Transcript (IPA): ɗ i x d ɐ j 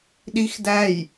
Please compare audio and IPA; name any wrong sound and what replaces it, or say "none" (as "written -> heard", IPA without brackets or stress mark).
ɐ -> æ